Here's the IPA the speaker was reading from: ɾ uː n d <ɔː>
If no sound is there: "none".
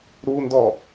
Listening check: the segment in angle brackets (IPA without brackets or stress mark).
ɔː